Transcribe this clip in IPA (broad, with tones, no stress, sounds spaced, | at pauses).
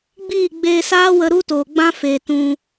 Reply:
ɡ͡b iː˦˨ ɡ͡b eː˧ s aː˦ w ə˧ ɾ u˦ t oː˨ ɡ͡b ã˦ f e˨ t ũ˧